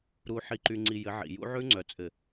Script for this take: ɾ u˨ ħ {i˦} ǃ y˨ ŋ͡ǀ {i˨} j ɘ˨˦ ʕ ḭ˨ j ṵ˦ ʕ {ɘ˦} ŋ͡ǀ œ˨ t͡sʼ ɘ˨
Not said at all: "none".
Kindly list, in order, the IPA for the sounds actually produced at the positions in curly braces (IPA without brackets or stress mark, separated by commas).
i˨, i˨, ʉ˦